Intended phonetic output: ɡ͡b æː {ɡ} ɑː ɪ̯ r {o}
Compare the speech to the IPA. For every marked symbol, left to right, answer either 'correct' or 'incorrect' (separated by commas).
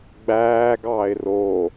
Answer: correct, correct